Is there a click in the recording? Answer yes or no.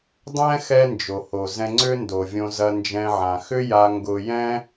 yes